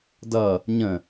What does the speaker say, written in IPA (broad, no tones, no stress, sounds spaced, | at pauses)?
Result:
d ʌ | ɲ ə̃